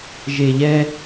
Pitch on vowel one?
low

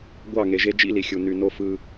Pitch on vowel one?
falling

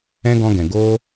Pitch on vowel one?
high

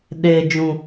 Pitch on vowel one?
low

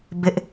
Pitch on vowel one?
high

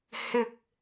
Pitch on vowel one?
high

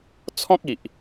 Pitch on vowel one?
high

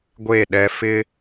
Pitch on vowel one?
falling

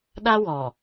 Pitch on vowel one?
high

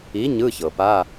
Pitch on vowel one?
rising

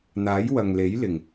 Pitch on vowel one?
rising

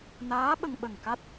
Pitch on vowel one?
rising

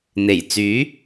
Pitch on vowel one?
low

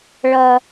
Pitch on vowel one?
low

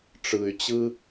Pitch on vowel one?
low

